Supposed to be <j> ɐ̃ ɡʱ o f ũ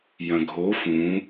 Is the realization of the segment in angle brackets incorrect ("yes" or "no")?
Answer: no